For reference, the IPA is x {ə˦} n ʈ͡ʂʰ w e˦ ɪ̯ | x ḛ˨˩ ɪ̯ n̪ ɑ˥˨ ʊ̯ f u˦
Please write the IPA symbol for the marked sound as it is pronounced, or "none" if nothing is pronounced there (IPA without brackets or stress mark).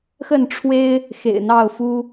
ə˥˨